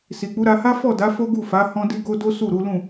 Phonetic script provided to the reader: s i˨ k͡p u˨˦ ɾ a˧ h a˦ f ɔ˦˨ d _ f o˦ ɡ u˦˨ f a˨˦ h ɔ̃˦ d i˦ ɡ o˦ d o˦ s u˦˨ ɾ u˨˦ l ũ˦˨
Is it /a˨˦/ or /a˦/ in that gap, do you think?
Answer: a˨˦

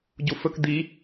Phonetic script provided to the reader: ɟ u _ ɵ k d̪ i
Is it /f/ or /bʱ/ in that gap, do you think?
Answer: f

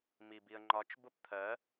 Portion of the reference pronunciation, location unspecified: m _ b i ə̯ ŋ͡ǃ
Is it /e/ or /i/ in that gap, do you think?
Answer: i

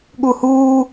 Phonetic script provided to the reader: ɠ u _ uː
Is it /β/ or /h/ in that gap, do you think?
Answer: h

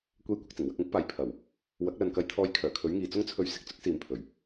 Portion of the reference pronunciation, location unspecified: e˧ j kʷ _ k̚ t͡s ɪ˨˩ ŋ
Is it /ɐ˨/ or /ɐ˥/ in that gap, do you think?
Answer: ɐ˨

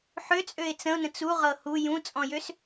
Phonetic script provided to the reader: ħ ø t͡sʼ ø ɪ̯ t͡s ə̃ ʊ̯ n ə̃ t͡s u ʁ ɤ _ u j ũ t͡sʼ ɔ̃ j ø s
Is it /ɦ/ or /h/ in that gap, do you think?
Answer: h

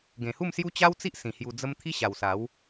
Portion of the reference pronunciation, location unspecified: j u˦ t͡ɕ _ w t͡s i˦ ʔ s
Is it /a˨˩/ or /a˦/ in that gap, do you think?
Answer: a˦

